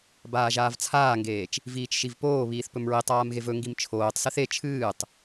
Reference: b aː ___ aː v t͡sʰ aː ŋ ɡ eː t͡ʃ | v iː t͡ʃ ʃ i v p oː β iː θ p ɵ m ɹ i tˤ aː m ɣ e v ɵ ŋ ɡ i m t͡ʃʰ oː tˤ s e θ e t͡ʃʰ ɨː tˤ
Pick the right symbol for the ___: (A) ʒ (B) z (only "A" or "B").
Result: A